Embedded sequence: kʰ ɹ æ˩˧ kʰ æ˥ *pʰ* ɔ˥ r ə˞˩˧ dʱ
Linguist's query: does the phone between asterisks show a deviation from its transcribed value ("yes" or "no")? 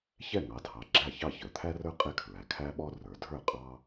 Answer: yes